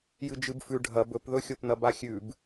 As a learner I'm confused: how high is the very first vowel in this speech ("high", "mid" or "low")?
high